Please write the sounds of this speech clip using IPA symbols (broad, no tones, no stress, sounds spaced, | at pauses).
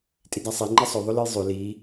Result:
tʼ i d a sˤ i ŋ͡ǃ ɐ sˤ ɵ ðˤ o l ɨ j zˤ ʉ l i